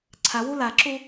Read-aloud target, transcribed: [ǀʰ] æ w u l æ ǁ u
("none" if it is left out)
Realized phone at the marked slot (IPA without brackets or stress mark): ǀʰ